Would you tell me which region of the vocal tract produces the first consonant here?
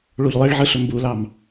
retroflex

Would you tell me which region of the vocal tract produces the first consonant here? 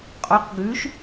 uvula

